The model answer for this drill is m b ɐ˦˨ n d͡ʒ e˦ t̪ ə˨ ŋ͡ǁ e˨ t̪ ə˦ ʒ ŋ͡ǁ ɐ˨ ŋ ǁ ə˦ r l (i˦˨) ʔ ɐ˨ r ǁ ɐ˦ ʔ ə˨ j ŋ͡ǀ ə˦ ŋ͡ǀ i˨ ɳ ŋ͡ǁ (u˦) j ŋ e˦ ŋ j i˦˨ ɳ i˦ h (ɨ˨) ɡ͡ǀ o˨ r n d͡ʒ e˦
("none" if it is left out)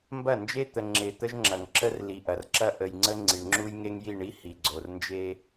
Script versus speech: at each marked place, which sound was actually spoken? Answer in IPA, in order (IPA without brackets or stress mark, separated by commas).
i˨, u˦, i˨